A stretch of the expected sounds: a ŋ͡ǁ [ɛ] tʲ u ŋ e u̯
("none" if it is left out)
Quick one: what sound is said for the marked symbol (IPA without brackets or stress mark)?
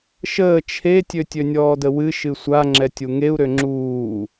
ɛ